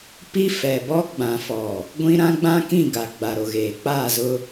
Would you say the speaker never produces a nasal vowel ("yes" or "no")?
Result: no